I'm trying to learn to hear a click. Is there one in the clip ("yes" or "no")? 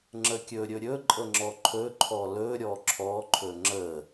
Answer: yes